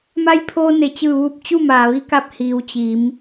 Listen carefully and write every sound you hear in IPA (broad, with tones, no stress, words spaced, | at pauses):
ma˧jpʰoː˧ ne˩t͡ɕɯː˧˩ʋuː˧˩p̚ t͡ɕu˥˨maː˩ʋi˧˥ka˧˥p̚ hiː˩˧wt͡ɕi˩˧m